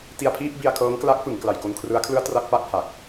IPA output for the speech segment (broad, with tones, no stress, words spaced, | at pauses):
ti˧a̯pʰiː˥˩p̚ bi˧a̯kʰɤː˦˥ŋkla˦˥k̚fɯ˩˦ŋ kla˨˩jko˧nkʰrɯ˦˥a̯kʰlɯ˥˩a̯ tra˥˩k̚pa˥˩k̚ ha˨˩k̚